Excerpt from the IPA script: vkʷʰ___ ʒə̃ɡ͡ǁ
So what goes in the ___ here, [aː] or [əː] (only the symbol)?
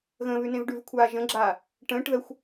aː